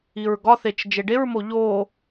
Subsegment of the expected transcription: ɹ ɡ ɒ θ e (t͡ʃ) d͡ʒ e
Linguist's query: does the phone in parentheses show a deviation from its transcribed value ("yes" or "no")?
no